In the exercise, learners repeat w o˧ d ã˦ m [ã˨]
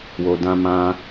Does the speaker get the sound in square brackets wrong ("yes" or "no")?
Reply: yes